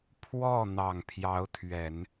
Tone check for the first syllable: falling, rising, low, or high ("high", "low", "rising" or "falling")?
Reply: falling